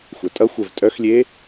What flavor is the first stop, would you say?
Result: ejective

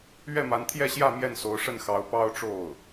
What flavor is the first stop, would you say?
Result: aspirated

